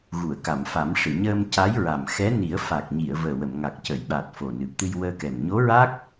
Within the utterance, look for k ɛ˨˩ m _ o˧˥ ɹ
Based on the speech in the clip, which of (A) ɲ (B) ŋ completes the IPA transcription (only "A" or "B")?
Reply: A